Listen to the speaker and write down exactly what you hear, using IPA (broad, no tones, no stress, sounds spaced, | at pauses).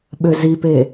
ɓ ø z i p e